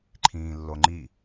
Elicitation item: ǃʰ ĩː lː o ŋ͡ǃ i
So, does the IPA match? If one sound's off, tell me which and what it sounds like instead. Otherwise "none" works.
none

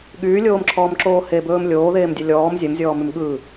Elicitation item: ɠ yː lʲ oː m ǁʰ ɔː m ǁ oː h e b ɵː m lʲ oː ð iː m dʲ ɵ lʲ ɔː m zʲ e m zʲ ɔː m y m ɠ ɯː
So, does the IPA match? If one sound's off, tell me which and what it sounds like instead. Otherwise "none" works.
iː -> eː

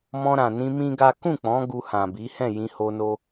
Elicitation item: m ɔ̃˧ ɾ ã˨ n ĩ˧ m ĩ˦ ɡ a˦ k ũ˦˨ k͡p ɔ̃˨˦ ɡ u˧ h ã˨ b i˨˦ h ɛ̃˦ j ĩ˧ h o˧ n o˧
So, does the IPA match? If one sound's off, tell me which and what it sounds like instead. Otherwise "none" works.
ɛ̃˦ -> ɛ̃˦˨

